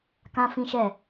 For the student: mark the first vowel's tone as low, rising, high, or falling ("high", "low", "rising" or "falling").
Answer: high